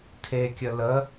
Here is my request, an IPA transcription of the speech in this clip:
tʰ e kʲ ə l ə

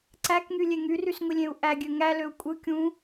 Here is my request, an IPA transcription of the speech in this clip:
ǀ æ k ŋ y lʲ e ŋ y r y s ŋʷ i lʲ ẽ u̯ ʔ æ ɡʲ ø ŋ æ l ø u̯ kʷʼ ɯ kʲ ũ

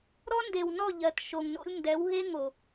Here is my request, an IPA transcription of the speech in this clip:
ɾ ɔ˦ n d e˨ w n ɔ˦˨ ʎ ɜ˨ t ʃ o˨ ŋ n o̰˦ lʲ n d ɛ˨˦ w ɦ e˦ ŋ o˨

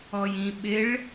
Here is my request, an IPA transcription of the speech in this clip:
ɔ j ĩ ɓ ɪ ɭ

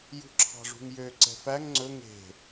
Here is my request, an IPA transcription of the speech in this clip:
j ṳ ǁʰ ɑ̤ ʐ ṳ ŋ j ø ǀ ɛ̤ f æ ŋ ŋ͡ǀ ɵ ŋ e̤

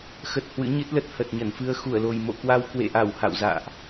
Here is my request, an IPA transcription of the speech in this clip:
x ə˨˩ t̚ h w ɨ̰˧˥ ɲ ɨ˦˥ t̚ l ə˦˥ t̚ h ə˨˩ t̚ ɲ ə˧˩ n f ɨ˧ ə̯ x u˧˩ ə̯ l o˨˩ j m o̰˧˨ k w a˧ w k w ḛ˧˨ ʔ a˧˩ w h a̰˧˨ w z a̰ː˧˨ ʔ

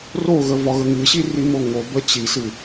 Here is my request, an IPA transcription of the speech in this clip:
r o ɣ ə v ɒ ɣ ə ŋ ɨ ɕ i r i m o ŋ o b ə t͡ɕ i s ɨ

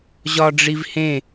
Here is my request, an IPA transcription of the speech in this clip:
ʑ ɒ ɖ͡ʐ i v h ẽ

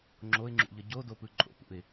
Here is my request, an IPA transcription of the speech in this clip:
ŋ͡ǁ o ɪ̯ ŋ͡ǁ ṵ ʎ ʌ ɟ o d o p ɯ ǃʼ o̰ p ṵ ɪ̯

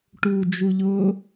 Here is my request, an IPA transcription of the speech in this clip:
ʈ u d͡ʒ u ʎ ʊ

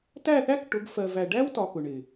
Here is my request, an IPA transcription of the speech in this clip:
t æ˦˨ θ æ˦ k ʈ ʊ˨˦ ɡ f ɜ˨ v æ˨ ɖ æ˦ w t ɒ˨ k ʊ˨ ɳ ɪ˨

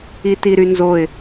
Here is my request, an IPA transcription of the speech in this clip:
i t i ɾ y n z o ɪ̯

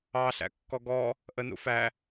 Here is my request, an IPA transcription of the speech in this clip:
ɑ ɬ æ̰ kː ɔ ɡ ɔ | ʔ ə n ṵ f æ

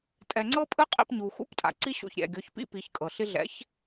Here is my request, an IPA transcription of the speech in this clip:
tʼ ɛ˨ ŋ͡ǀ ɤ˦ pʼ ɯ˦ qʼ ḭ˧ p ɲ u˨ x ṵ˦ p tʼ a̰˨ ǀ i˦ ɕ o̰˧ ç ɾʲ ɛ̰˨ ɡʲ ɔ˨˦ ç p ḭ˦ p i˨˦ ç kʼ ɤ˨ ɬ i˦ ɮ ɛ̰˨˦ ç

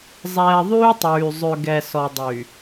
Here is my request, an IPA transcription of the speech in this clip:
zˤ ɛː˨ ðˤ yː˦ tˤ yː˨ zˤ ø˨ ɡ ɛ˨ s ɔ˨ dˤ yː˨

